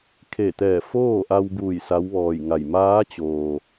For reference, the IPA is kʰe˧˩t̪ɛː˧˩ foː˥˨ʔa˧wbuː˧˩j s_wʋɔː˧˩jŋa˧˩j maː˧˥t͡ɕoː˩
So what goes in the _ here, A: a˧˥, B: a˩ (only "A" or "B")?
A